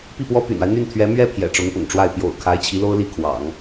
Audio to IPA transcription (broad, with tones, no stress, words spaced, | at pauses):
pi˥˩pwɔ˥ py̰˨˩na˦ɪ̯ n̪y˥˩nt̪ʰɥɛ˧˥ mɥɛ˥ pʰjɛ̰˨˩ʈ͡ʂʊ˧˥ŋpʊ̰˨˩ŋʈ͡ʂwa˥˩ɪ̯ pjo̰˨˩ʊ̯ kʰa˧˥ɪ̯t͡ɕʰi˧˥lo˥ʊ̯li˥˩ kʰwɑ̰˨˩˦ŋ